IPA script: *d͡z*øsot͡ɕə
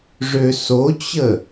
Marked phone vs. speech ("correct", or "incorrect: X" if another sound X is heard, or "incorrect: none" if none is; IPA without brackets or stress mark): incorrect: ʐ